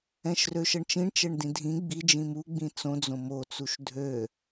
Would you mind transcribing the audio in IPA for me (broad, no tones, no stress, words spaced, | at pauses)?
ɛ̃ʃrøʃʌɳt͡ʃĩɳ t͡ʃɛɳdĩdʱĩ ɡ͡bi d͡ʒĩmu ɡ͡bĩt͡sõ d͡zõmo t͡suʃdʱø